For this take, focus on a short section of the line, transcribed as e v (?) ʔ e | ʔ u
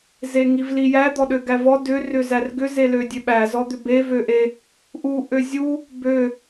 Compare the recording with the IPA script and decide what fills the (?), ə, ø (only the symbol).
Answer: ø